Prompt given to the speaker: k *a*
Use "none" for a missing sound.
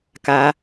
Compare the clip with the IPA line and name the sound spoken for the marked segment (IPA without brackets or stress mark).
a